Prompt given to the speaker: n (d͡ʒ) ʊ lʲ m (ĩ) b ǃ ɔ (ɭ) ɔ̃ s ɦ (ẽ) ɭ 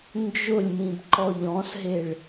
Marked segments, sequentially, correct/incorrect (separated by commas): correct, correct, incorrect, incorrect